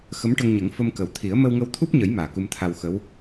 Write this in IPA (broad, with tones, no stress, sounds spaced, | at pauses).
x ə˧˥ m ʈ ə˧ ŋ ɲ ə˨˩˦ ŋ f ə˧ m k ə˨˩ w t̪ʰ i˨˩˦ ə̯ m ə˧ w ŋ ə˧ w t̪ʰ u˦˥ p̚ ɲ ə˨˩˦ j m aː˨˩ k u˧ m t̪ʰ a˧ w x ə˧˥ w